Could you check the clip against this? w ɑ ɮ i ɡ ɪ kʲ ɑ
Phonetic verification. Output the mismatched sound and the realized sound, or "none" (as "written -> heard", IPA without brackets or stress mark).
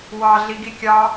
ɪ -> i